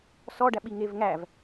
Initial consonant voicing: voiceless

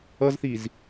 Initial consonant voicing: voiced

